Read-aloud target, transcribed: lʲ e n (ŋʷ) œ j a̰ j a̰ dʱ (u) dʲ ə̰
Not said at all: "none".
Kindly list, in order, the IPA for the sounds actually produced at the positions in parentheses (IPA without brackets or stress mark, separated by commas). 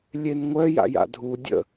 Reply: ŋʷ, u